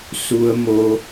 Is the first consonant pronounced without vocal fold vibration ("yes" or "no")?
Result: yes